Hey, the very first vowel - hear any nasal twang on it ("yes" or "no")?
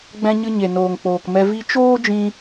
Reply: yes